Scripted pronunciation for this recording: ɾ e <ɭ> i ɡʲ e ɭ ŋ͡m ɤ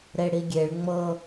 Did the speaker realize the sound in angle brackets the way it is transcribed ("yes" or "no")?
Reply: no